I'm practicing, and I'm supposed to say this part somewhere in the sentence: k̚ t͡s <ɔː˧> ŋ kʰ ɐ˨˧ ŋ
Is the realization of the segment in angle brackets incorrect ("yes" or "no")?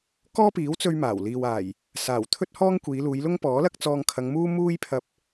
no